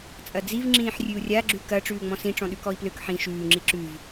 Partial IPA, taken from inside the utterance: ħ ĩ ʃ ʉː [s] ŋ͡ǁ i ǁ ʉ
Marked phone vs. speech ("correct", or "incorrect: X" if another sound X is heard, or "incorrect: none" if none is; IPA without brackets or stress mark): incorrect: none